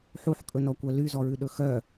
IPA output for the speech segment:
ħ u ħ kʼ ɵ n ɔ kʷ œ l y z ɔ ɹ ʉ ɗ ɵ x œ

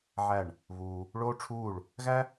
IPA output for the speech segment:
ʕ æ˦˨ ɳ | β uː˧ | ɭ oː˦ ʈ͡ʂʰ uː˦˨ ɭ | ɣ æ˦

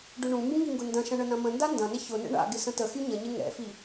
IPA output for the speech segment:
ɖ ʏ ɳ ũ m b ũ ŋ i ŋ ɡ ʊ n d ɐ̃ ʃ ɐ̃ ɳ ə n ɐ̃ m ə̃ n d a n d ɐ̃ n ɪ ç ʊ n ɛ̰ ɳ a̰ ɡ ɪ s ə̃ t ə x y ɲ ə ɲ ɪ ŋ ɛ̰ f i

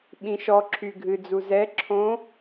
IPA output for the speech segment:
ɓ ĩ ʃ ɔ ǁʰ y ɡʱ ɨ d͡z u z ɛ ǁʰ õ

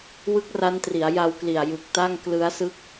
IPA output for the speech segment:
w ɯ˦˥ k̚ r a˦˥ n t r i˩˦ a̯ j a˧ w k l i˨˩ a̯ j ɯ˨˩ k̚ t a˥˩ ŋ k l ɯ˦˥ a̯ s ɯ˦˥ k̚

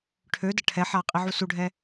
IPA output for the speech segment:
ʈʰ ø d ə ʈʰ ɛ ħ a qʼ i ʕ u s u ɖʱ ɛ

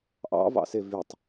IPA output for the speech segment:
ʔ ɑ̰ v ɑ̰ s e v y tˤ

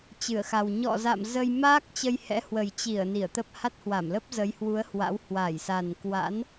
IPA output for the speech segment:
t͡ɕ ɨ˧˩ ə̯ x a˨˩ w ɲ ɔ̰˧˨ z a̰˧˨ m z ə˧ j m aː˦˥ k̚ t͡ɕ ə˧ j h ɛ̰˧˥ h w ə˨˩ j t͡ɕ i˧˩ ə̯ n i˧˩ ə̯ t̪ ə˦˥ p̚ h a˦˥ t̚ h w a˧˩ m l ə˦˥ p̚ z ə˨˦ j h w u˨˦ ə̯ h w a̰˧˥ w h w a˧˩ j s a˨˩ n k w a̰˧˥ n

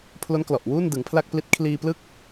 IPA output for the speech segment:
pʰ l o˦˥ n k l ɔ˨˩ ʔ w uː˥˩ n d ɯ˩˦ ŋ pʰ l a˥˩ k̚ p l i˦˥ t̚ kʰ l iː˧ p l ɯ˥˩ k̚

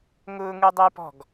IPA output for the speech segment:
ŋ ʊː ŋ u dˤ ɘ j p ɔ̤ ɡ

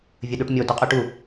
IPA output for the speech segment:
vʲ ə ɗ u ʈ mʲ o d o qʼ ʉ ʈ u

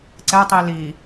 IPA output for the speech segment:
ǀ ɛ tˤ i l i

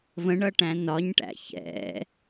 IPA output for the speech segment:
v ə̃ ɳ ʌ ʈ æ̃ n ɒ ɲ ʈ æ̰ ç ɛ̰

